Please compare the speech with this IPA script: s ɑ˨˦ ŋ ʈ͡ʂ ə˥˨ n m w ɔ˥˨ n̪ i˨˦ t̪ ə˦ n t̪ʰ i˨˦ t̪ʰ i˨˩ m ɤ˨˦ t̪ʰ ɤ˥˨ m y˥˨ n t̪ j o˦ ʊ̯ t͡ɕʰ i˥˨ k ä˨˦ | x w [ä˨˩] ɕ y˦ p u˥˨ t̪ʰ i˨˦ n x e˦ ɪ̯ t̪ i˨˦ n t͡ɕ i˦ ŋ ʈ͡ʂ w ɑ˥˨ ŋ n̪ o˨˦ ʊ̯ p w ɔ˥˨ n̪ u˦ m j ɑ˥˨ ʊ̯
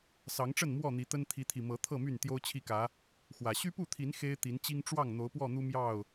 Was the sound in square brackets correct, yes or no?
yes